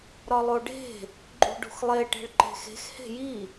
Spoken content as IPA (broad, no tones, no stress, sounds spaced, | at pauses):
ɾ ɒ lˠ o ɖ e̤ | ɡ͡ǃ ṳ ɖ ṳ x lˠ e ʈ e̤ ɭ ǃ e̤ x e̤ x h e̤ j i